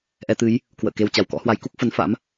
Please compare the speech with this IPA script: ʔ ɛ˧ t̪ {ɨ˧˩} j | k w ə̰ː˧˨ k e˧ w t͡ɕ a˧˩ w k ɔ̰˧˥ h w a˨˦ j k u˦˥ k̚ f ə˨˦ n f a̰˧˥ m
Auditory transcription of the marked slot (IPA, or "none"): ɨ˨˦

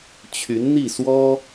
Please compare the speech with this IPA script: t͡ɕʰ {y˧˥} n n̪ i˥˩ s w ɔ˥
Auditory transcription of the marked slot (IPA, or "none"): y˧˥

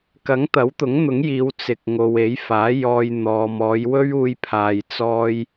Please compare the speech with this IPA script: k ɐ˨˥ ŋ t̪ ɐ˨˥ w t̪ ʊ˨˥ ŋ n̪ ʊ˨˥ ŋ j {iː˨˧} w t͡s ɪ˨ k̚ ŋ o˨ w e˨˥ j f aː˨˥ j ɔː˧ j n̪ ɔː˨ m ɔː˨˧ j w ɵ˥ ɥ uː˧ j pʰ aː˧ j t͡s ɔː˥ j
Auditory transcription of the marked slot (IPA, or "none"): iː˨˧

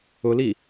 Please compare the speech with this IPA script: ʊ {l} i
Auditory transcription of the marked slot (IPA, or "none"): l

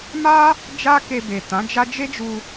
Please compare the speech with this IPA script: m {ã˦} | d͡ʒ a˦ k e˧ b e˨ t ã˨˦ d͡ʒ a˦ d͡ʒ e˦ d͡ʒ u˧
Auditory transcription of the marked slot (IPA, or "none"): a˦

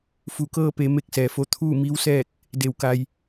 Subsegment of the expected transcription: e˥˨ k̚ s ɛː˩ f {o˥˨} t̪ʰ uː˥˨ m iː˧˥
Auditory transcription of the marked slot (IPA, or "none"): o˧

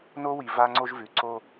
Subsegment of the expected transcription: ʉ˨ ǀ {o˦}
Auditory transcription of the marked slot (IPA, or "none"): o˦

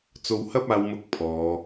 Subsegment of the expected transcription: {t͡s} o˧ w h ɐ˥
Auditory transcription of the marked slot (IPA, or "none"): t͡s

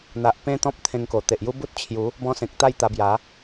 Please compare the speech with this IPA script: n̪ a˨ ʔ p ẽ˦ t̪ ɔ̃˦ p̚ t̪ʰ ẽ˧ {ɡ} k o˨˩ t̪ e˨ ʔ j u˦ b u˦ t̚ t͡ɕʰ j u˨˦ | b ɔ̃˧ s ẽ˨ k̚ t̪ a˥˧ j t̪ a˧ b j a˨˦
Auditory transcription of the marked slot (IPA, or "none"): ŋ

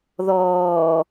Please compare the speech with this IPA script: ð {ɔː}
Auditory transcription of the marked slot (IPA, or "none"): ɔː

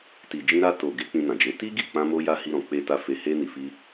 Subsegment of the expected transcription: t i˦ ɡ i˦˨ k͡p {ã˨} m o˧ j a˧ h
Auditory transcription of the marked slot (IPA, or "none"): ã˧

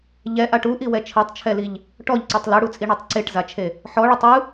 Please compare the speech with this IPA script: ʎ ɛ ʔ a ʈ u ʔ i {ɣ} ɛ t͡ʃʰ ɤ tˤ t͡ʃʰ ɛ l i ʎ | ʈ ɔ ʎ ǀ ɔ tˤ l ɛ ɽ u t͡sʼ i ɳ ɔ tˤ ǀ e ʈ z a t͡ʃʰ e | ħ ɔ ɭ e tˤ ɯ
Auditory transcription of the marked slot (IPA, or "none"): w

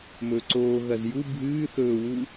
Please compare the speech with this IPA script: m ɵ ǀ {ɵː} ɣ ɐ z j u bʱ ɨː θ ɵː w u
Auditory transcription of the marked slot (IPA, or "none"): oː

